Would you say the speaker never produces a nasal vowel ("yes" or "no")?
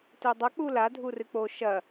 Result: yes